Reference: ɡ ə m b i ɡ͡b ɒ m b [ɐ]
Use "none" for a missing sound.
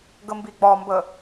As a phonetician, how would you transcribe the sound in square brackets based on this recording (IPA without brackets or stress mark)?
ə